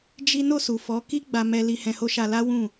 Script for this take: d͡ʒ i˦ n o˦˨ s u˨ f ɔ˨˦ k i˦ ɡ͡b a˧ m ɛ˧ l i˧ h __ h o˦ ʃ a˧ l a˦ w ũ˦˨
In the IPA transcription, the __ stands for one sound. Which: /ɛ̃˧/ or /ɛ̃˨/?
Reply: ɛ̃˧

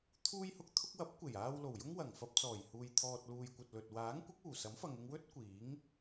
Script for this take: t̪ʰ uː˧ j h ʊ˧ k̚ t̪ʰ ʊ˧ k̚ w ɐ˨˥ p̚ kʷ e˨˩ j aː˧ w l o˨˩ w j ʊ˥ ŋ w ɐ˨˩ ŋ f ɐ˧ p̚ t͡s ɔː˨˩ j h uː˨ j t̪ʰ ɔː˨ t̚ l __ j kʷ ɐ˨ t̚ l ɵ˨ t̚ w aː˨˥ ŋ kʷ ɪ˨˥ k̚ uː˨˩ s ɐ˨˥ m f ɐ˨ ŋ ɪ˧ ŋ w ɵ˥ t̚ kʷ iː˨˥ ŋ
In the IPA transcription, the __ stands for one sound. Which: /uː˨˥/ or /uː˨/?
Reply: uː˨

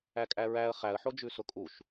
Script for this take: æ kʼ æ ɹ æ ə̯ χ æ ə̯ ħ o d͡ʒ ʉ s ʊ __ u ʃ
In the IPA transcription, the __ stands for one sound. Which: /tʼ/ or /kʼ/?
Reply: kʼ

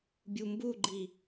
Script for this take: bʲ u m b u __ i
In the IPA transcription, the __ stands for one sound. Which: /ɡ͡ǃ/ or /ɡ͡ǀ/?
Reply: ɡ͡ǃ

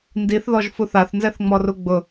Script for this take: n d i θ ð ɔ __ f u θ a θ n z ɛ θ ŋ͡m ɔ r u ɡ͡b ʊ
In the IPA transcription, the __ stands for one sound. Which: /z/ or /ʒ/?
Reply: ʒ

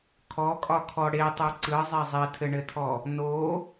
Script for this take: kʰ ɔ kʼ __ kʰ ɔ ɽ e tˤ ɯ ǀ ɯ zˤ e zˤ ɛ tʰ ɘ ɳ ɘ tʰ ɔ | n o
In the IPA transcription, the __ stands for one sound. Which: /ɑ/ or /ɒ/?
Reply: ɒ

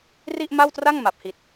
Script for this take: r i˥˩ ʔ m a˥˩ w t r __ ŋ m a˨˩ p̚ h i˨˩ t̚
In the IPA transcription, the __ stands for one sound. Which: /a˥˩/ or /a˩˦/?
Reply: a˥˩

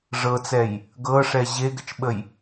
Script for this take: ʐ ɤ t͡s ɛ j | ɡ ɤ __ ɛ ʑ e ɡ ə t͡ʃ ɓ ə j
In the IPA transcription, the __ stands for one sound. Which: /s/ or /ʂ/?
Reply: ʂ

